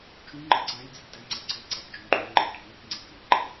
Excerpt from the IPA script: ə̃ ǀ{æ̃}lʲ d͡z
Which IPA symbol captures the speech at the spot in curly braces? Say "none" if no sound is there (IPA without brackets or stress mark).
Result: æ̃